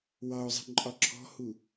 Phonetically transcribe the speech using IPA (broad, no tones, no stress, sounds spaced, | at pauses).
w ɑ ʊ̯ zˤ i̤ ǃʼ ɒ ǁʰ ɔ̤ h u